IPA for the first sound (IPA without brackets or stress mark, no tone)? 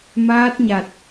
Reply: m